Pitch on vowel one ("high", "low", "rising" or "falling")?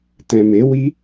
low